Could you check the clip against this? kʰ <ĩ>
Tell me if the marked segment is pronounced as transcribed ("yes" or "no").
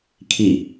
no